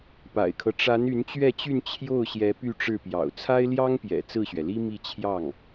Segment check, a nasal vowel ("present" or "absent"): absent